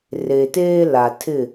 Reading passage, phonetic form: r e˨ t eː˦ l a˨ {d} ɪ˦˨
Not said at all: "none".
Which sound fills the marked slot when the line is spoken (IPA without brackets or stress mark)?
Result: tʰ